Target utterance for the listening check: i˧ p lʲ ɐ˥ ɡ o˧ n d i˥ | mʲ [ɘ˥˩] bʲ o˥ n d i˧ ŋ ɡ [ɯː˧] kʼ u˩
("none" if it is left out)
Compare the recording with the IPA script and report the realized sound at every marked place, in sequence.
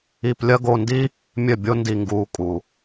ɘ˥˩, uː˧

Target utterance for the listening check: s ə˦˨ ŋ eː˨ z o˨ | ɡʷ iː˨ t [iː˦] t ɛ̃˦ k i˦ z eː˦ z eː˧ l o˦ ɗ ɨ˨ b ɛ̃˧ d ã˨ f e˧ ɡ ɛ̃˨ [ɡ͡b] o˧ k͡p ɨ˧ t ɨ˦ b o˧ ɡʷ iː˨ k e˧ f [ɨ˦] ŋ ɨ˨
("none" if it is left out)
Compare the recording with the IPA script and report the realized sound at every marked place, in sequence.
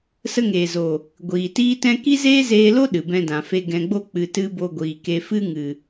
iː˦, ɡ͡b, ɨ˦

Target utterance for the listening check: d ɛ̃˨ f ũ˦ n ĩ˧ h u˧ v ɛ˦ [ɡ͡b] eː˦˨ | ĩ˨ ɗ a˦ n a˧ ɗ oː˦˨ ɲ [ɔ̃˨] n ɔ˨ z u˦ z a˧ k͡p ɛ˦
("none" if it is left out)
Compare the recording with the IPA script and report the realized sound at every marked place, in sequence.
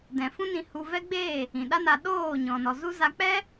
ɡ͡b, ɔ̃˨

